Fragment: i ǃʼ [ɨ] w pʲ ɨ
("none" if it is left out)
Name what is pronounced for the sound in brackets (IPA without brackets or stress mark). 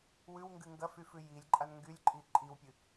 i